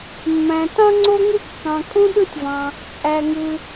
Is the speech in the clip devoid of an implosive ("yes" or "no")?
no